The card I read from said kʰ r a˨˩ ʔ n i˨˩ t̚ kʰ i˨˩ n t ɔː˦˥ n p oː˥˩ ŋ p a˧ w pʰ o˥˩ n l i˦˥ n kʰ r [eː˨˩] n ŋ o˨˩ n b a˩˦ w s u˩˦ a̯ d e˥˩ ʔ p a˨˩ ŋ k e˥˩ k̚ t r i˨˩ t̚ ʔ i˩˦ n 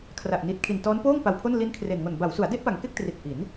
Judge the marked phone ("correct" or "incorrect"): incorrect